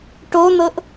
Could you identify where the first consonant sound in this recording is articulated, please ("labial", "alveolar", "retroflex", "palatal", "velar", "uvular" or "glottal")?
retroflex